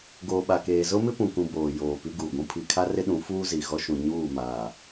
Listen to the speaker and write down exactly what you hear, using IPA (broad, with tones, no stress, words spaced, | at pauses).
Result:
ɡoː˨ɓa˨keː˨ zʊ˦mɪ˦pũ˨kũ˨ boː˨ joː˨ pi˦ɡuː˨ɡʷũ˦ pʰi˨kʰa˦rɪ˦ɗũ˨˦ fuː˦zi˨ɣɔ˦ʃũ˨ ɲuː˦˨maː˨